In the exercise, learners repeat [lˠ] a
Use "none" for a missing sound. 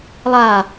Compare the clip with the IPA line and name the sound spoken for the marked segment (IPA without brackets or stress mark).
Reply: lˠ